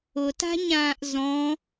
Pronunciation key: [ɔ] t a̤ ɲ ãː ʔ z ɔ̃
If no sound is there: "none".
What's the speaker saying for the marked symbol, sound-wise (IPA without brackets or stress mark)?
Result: ʊ